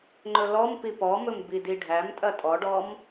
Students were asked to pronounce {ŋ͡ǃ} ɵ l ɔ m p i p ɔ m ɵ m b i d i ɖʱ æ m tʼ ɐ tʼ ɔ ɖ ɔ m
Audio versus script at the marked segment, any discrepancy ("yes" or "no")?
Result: no